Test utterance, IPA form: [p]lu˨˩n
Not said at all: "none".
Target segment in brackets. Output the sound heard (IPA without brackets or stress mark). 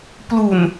p